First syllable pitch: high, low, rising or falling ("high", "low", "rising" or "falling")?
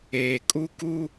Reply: low